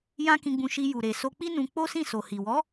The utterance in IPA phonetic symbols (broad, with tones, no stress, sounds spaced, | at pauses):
j ã˦ k ĩ˧ ɡ͡b ũ˧ ʃ i˧ j u˨ ɾ e˨ s o˧ k͡p i˦ n ũ˧ k͡p o˦ s ĩ˦˨ s o˨ h i˨ w ɔ˨˦